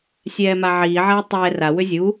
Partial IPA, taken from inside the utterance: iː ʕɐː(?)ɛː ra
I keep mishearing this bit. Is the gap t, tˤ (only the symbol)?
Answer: tˤ